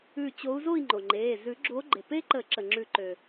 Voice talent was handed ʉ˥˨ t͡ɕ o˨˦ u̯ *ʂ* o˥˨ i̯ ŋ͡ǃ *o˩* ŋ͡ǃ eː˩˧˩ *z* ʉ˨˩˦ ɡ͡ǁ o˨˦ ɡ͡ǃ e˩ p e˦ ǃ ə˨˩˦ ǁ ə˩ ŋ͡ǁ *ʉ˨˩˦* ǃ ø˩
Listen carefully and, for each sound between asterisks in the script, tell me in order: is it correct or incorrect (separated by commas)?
incorrect, correct, correct, correct